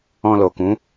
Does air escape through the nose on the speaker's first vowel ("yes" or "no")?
yes